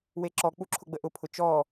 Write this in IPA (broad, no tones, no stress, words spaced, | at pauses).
weǁɔ k͡puǁʰʊɡ͡bəʔʊ pʰʊt͡ʃɔ